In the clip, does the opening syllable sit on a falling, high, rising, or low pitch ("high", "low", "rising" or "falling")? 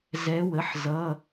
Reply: rising